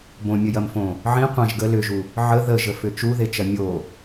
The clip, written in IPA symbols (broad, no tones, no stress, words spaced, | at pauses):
bõmʲəjɐmfõ | ʕĩ qʷɐ̃ʒ ɡə lʏʒu | ʕə ðəʒəfʏ t͡ʃuðet͡ʃɐ mʲo